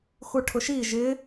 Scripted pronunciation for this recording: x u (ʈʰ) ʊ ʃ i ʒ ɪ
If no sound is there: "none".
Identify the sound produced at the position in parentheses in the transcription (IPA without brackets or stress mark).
ʈʰ